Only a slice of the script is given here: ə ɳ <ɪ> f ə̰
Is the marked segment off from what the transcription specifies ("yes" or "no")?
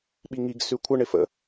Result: no